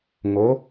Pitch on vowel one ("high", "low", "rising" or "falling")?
rising